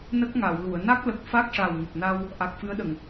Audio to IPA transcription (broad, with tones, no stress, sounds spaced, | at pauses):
n ə˦˥ k̚ ŋ a˨˩˨ w l u˨˩˨ ə̯ n a˦˥ k̚ l ə˨˩ k̚ f a˦˥ k̚ ʂ a˨˩ w ŋ ə˨˩ k̚ n a˧ w | ʔ a˨˩ k̚ f ɨ˧˥ ə̯ ɗ ə˨˩˨ ŋ